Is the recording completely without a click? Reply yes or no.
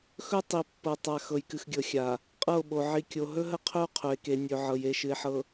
yes